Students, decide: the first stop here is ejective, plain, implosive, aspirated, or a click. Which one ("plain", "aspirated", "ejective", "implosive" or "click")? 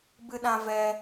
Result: plain